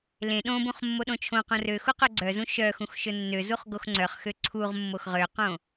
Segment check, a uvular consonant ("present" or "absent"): present